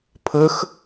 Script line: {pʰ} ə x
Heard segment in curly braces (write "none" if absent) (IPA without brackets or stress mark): pʰ